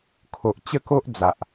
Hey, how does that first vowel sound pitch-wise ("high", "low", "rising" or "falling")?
low